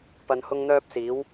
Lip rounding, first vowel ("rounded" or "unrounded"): unrounded